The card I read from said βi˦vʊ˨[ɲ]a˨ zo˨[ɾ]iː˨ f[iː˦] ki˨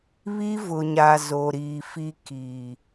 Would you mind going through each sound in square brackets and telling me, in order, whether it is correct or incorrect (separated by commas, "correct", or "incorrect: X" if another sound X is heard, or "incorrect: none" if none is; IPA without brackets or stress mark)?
correct, correct, incorrect: i˦